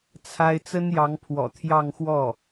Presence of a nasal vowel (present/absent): absent